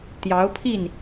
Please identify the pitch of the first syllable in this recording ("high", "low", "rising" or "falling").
rising